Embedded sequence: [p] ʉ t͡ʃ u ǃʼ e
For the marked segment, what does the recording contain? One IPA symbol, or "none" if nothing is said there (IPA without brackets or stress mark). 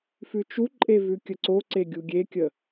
f